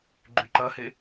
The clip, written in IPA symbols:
ɡ͡ǃyǃɐhe

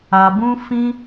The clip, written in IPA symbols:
a˨bũ˧ fĩ˧

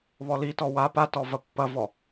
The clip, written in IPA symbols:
βɔlitɔ wa patɔ vɐpːɐvɔ

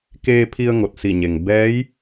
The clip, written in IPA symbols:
keː˧pʰi˧ə̯ ŋo˧˩t̚si˧˩ɲe˩ŋ bɛː˧˥j

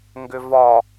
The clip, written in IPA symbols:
ŋɡʏvɒ

